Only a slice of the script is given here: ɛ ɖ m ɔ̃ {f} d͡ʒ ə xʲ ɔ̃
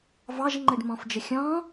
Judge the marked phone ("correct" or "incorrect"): correct